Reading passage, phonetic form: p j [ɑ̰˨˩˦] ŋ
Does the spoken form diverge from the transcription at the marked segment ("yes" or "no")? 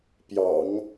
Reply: no